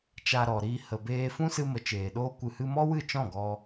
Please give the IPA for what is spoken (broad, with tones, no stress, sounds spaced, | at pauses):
t͡ʃ a˧ ɾ ɔ˨ ɾ iː˧ h ə˨ b eː˧ f ũ˦ s ɨ˧ m ə˨ t͡ʃ eː˨ ɗ oː˦ kʷ ɨ˧ h ɨ˦ m ɔ˦ w ɨ˦˨ t͡ʃ ɔ̃˦˨ ɡ ɔ˧